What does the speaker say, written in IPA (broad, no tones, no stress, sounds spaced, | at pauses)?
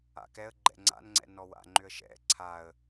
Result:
a̰ k ɛ ə̯ ɡ͡ǃ ɛ̰ ŋ͡ǀ a̰ n ŋ͡ǀ ɛ̰ n ɔ w a̰ ŋ͡ǃ ʏ ə̯ ʃ ɛ̰ ǀʰ a ə̯